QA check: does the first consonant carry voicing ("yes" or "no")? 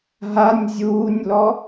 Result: yes